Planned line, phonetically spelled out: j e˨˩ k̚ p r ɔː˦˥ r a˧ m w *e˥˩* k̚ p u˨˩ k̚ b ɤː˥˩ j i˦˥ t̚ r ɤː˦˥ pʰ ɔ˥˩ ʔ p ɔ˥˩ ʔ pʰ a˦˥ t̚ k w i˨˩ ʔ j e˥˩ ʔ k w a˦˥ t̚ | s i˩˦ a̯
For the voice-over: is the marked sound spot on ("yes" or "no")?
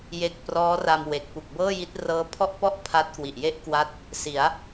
no